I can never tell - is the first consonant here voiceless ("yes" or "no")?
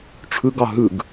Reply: yes